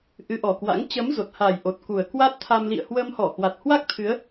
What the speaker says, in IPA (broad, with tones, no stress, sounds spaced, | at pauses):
ʔ ɨ˨˦ ʔ ɔ˨˩ k w a̰˧˥ ŋ t͡ɕ ə˨˦ m z o˨˩ t̚ h a˨˩ j ʔ o˨˩ t̚ k u˨˩ ə̯ k w a˦˥ t̚ t̪ʰ a˧ m l ḭ˧˨ ə̯ h w ə˧ m h ɔ˧˩ h w a˨˩ t̚ h w a˦˥ k̚ t̪ʰ ɨ˨˦ ə̯